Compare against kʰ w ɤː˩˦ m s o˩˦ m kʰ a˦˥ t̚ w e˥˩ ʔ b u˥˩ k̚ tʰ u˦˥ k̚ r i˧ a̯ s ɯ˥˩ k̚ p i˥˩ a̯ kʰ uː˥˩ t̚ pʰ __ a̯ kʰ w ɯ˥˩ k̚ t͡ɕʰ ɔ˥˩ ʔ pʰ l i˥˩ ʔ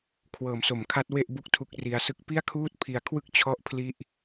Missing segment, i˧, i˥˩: i˧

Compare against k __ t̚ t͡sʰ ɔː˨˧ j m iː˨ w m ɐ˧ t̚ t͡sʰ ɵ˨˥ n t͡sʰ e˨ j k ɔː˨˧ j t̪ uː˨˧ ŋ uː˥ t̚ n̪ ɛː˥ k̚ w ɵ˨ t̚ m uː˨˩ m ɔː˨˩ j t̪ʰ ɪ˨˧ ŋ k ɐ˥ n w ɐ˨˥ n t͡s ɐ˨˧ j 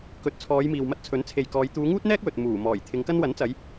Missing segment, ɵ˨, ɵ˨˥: ɵ˨˥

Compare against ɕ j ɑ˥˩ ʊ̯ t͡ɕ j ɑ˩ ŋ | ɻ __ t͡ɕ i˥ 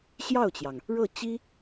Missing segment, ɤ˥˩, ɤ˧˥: ɤ˥˩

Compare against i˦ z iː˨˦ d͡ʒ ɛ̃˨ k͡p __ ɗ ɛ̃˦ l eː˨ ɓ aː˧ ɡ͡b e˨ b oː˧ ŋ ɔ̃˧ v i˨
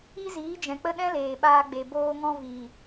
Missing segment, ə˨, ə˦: ə˦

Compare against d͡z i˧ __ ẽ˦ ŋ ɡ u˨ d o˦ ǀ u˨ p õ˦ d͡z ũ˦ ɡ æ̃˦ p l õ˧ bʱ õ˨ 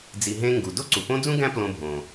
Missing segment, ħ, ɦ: ɦ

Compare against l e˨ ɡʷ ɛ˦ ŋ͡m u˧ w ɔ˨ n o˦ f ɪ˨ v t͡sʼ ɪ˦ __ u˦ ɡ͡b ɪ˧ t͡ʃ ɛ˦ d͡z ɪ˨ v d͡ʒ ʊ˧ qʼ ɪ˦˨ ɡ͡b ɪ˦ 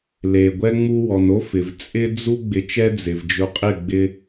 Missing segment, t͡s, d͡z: d͡z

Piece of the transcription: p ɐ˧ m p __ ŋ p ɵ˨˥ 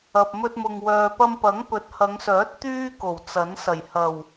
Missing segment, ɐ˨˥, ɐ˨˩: ɐ˨˥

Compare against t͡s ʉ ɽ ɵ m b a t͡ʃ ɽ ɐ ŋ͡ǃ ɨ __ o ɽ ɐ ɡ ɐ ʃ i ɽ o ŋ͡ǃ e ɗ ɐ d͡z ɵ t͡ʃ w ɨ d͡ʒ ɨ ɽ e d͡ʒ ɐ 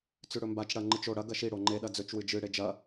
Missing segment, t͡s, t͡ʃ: t͡ʃ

